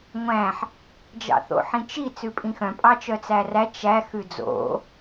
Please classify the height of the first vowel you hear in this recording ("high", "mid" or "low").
low